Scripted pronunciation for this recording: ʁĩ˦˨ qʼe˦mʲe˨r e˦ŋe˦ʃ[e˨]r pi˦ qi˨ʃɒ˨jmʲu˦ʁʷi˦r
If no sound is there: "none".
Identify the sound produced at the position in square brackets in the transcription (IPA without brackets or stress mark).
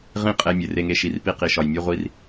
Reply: i˨